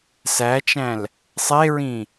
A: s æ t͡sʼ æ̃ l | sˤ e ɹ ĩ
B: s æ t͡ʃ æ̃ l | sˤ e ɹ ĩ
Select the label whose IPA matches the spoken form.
B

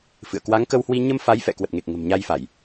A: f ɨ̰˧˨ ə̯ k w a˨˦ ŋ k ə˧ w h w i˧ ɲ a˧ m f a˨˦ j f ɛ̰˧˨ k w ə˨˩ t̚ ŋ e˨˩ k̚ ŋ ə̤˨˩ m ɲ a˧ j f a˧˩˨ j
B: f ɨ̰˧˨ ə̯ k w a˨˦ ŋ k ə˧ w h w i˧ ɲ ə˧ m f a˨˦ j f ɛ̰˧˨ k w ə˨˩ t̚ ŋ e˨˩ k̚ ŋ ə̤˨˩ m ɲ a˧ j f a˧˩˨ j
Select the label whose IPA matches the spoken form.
B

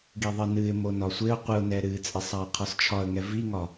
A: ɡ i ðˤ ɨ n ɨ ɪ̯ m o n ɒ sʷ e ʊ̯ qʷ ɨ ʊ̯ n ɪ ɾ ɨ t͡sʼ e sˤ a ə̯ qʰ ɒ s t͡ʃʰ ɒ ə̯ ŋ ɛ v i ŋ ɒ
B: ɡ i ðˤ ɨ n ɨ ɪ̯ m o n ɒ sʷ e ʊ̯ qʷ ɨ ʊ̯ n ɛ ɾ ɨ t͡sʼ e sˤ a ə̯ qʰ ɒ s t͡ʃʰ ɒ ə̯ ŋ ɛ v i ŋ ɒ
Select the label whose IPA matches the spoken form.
B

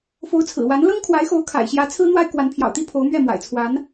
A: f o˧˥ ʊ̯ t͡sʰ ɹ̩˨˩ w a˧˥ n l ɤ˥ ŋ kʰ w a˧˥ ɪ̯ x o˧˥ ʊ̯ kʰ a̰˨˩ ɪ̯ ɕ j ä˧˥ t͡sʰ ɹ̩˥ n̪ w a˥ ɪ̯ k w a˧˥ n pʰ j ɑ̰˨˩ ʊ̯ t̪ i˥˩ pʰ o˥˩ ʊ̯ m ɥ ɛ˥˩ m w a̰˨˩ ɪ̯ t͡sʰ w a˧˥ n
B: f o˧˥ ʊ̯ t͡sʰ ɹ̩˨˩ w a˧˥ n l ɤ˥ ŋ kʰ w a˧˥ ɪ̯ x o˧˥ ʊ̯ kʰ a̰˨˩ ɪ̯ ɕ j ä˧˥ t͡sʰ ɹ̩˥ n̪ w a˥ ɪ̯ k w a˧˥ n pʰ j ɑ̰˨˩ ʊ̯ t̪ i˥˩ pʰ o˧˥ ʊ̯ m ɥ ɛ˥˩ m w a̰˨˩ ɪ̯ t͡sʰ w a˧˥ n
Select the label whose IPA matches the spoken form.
B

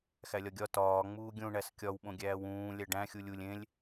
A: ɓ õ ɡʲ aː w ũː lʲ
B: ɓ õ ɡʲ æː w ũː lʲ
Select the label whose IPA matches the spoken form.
B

